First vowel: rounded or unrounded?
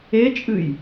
unrounded